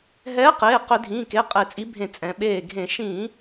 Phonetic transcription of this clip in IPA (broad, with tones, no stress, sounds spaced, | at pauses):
ɦ ɛː˨˥ q eː˩˧˩ q ʏ˧˩˧ dʱ ĩː˩˧˩ k e˩˧˩ qʼ e˧˩˧ t͡sʼ i˨˥ bʱ ẽ˧˩ t͡sʼ ɛ̃˩˧ ɓ eː˧˩ ɡʱ ẽ˧˩˧ ʃ ĩː˧˩˧